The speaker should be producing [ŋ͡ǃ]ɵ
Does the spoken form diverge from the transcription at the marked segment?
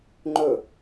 no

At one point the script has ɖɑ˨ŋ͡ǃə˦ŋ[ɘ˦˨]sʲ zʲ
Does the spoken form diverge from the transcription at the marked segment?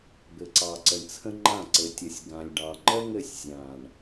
no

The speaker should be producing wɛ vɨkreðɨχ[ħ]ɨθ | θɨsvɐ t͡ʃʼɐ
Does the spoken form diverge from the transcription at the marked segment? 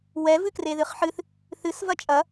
no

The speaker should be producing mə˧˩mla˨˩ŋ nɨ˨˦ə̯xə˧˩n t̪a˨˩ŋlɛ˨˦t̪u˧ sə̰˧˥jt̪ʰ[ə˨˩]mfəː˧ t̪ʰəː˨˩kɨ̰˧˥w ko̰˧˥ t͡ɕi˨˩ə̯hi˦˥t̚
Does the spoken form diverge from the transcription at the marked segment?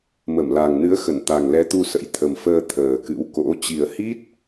no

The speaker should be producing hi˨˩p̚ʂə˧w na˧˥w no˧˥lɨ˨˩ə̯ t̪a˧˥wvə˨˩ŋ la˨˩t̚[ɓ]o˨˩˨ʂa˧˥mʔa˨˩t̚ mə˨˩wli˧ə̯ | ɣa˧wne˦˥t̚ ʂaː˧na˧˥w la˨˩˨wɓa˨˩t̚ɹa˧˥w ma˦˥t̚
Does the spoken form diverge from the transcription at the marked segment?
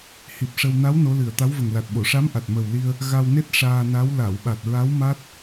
no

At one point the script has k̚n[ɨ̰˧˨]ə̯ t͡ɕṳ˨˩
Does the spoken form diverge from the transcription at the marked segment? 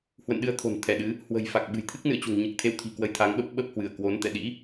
no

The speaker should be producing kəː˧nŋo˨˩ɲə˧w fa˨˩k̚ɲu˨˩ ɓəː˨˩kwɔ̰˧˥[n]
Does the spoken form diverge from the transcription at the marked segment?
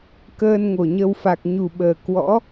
yes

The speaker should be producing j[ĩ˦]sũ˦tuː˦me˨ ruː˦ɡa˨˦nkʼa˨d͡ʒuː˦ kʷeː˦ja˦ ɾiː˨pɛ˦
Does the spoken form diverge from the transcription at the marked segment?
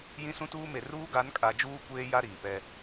no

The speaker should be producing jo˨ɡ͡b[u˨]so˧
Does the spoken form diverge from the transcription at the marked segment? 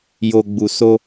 no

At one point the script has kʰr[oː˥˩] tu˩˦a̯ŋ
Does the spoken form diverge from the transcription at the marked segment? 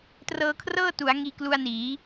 yes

